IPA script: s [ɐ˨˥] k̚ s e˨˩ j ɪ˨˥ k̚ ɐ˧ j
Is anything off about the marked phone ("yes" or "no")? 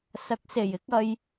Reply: no